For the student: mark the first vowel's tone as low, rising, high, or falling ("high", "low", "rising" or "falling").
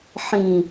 low